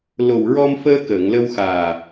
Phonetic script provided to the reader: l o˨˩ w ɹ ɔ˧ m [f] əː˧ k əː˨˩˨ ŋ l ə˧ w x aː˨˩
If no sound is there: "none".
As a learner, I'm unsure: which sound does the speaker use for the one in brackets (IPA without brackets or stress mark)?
f